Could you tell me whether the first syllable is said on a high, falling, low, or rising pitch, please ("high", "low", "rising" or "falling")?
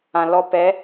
low